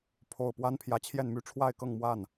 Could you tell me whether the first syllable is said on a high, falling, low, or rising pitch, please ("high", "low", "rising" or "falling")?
low